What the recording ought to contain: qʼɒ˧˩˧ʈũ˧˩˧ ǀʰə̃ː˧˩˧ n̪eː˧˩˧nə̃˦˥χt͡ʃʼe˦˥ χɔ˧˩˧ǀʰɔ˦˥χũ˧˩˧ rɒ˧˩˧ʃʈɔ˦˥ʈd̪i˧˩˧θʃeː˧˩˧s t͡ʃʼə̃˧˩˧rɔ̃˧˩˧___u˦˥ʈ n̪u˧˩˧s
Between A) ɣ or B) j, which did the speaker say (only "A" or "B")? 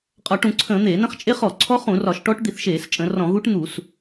A